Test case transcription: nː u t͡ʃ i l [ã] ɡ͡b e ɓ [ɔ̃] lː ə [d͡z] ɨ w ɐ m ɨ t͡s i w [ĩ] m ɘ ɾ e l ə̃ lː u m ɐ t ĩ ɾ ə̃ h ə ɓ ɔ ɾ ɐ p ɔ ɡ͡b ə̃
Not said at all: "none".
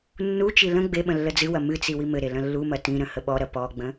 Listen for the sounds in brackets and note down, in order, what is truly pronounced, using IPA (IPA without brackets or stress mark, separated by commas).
ə̃, ə̃, d͡z, i